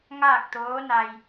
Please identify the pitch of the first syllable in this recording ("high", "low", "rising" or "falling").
falling